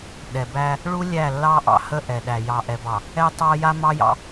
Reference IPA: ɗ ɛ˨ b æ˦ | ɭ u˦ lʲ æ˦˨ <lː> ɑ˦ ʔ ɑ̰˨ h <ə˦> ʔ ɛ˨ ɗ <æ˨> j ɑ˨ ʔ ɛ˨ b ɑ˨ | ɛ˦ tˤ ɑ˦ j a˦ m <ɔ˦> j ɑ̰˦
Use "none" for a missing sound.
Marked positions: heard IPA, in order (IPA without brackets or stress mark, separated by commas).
lː, ə˦, æ˨, ɑ˦